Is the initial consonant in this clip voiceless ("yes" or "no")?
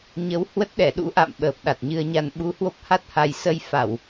no